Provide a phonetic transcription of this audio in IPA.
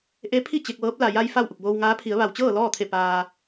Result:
ʔ e˧˥ pʰ i˥˨ t͡ɕ e˧ k̚ ʋ ɤː˧˥ p̚ l a˩ j a˧ j f a˥˨ w ʔ u˧˩ k̚ b oː˧ w ŋ aː˧˥ pʰ i˩˧ ə̯ ʋ a˩ w t͡ɕ ɤː˥˨ l ɔː˥˨ t̪ʰ e˧˩ p aː˩

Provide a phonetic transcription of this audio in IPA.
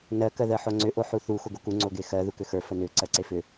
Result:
n ɜ k ɜ ð ɜ ħ o ŋ͡ǀ ʏ ʔ o ħ u θ u x o ɡ o k u ŋ͡ǀ o ɡ e x ɜ ð u k ʏ x ə˞ f ə n ʏ ǀ ɜ ǀ e f ʏ

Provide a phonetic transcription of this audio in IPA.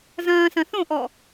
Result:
z ɐ̃ː s ɐ̃ θ õ ʔ ɔ

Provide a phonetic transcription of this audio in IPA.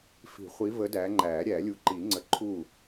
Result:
f i̤˨˩˦ χʷ i˨˦ v ə˨˦ d æ˨˦ ŋ͡ǃ æ˨˩˦ ɾʲ æ˨˩˦ lʲ u˨˦ ǃ i˨˩˦ ŋ͡ǀ ə˨˦ ǃʰ u˥˩

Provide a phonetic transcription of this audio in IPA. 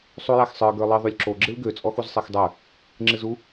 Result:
sˤ u j a x sˤ ə˞ ɡ ə˞ lˠ ɨ ðˤ u lʲ ǁ o ɡ͡ǁ ɨ l ɡ ø t͡sʼ ɔ x u z sˤ ɛ x dˤ ə˞ | ŋ͡ǁ ɨ z u

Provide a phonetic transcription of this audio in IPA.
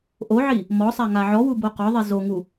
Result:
ʔ o ʕ i | m ɔ sˤ a ŋ a ʕ ɔ w u b o q ɔ ðˤ i z o ŋ u

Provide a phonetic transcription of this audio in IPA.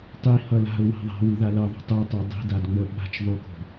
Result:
tˤ i h ʌ l a̤ ʊ̯ w a̤ ðˤ a̤ w u ð a l ʌ ðˤ o̤ tˤ o tˤ ə˞ dˤ i̤ d a d ŋ͡m ə ɓ a̤ t͡ʃ ðˤ u k o̤

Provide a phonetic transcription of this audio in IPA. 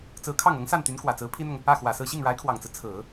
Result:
t͡s ɹ̩˧˥ kʰ ɑ˥˩ ŋ ɤ˧˥ ŋ s a˥˩ n t̪ y˧˥ n k w ä˨˩ t͡s ɹ̩˧˥ pʰ i˥ n̪ ʊ˨ ŋ | ä˥˩ x w ä˨˩ s ɹ̩˥˧ ɕ i˥˩ ŋ ɻ a˧˥ ɪ̯ kʰ w ɑ˨˩ ŋ t͡s ɹ̩˦ t͡sʰ ɹ̩˨˩˦

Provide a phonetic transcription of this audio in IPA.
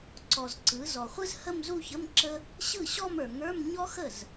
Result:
ǀ ɔ˩ z ǀ ɯ˩˧ z ɔ˩ χʷ ɯ˥ z h ə˥˧ m z u˥˧ ç ə˧˥˧ m ǁ ə˥ | ɕ ɯ˥˩ ɕ ɔ˥˧ m ə˞˩ ŋ ə˞˧˥˧ m ɲ ɔ˥ x ə˥˩ z

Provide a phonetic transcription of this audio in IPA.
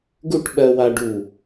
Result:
ɡ u˥˧ ʈ ɓ ɜ˧ w a˧ ɖ u˧˩

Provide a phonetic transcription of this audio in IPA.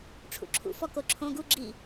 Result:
ʈ͡ʂʰ ṵ ǁʰ ṵ f ɔ k o ǁʰ õ ɡ u ɡ͡ǁ i

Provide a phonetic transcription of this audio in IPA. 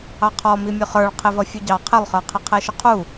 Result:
ɑ qʰ ɔ m i mʲ ʊ χ ə˞ ɭ qʰ ɪ v ʌ fʲ u ɟ ɑ qʰ ɪ lˠ χ ə˞ qʰ ɪ qʰ ɛ ʃ ʊ qʰ u

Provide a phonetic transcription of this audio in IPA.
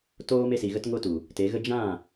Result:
t oː˦ m e˧ s i˨ ɣ ə˧ t ŋ o˧ t u˨ | t e˨˦ ɣ ə˦ d͡ʒ ã˦˨

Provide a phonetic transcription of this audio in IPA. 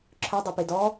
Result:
ǁʰ œ dˤ u p i d ɔ

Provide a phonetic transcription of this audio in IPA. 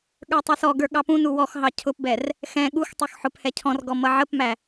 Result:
ɠ ə˞ tˤ ʌ s ɔ ɡ ə˞ ɠ ɑ p ũ n u w ɔ x ɦ ɑ cʰ ʊ p b ɛ r | x ɛ̃ ɠ u x tˤ u x ħ ʊ p h ɛ cʰ ɔ̃ r ɡ ɔ m ʌ ʕ ə p m æ

